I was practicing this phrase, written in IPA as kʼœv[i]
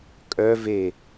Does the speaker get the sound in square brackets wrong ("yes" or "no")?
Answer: yes